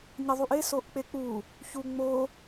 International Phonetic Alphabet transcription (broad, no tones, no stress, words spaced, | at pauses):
ɲəðˤuʔe soʔk͡pek͡pu | çuŋ͡mo